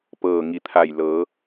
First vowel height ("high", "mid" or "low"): mid